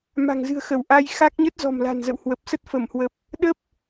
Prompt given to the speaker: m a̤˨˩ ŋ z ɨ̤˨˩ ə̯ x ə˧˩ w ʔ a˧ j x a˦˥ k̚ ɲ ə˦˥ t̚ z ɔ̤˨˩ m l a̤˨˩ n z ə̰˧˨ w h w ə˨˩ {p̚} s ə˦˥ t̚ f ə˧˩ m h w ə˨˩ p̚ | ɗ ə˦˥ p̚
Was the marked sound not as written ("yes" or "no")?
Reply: no